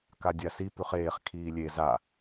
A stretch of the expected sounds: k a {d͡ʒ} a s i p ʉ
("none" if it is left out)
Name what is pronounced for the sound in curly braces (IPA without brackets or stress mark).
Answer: dʲ